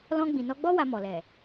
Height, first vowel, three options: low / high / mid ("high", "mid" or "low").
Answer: mid